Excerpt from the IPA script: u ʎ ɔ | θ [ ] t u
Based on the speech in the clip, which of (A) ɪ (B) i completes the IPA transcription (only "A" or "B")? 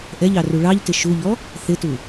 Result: A